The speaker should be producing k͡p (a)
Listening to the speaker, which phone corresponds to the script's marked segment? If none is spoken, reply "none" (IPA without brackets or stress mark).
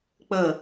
ə